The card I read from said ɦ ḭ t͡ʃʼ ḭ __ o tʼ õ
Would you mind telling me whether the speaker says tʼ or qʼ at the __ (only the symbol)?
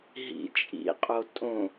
qʼ